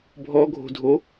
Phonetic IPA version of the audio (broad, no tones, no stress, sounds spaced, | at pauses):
bʱ ɔ ɡʱ o̤ dʱ o